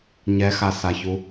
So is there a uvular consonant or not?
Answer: no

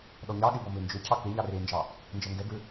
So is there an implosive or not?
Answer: yes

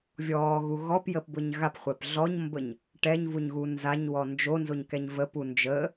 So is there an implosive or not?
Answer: no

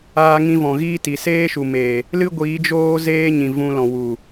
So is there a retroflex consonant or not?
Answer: no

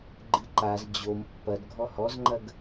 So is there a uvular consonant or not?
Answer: no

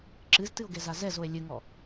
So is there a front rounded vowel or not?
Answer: no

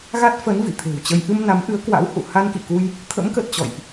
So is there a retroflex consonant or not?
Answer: no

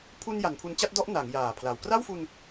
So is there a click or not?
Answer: no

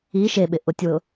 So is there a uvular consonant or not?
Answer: no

